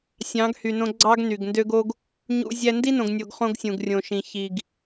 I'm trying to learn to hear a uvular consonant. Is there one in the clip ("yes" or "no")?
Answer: yes